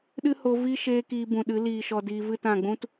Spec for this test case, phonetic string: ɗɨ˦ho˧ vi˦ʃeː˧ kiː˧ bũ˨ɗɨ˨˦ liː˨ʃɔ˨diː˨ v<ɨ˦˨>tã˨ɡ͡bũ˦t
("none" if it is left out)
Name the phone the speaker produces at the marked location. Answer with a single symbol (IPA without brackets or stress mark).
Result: ɨ˦˨